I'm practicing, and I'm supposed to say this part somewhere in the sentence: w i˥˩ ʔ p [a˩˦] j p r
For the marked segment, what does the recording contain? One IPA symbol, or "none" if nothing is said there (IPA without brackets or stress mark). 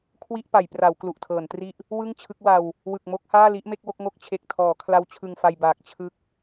a˩˦